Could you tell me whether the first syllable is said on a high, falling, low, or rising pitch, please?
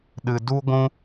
high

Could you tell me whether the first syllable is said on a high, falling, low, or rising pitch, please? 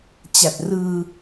low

